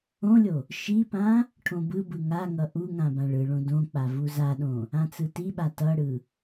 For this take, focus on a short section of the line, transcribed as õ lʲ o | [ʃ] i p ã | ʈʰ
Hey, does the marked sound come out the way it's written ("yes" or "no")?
yes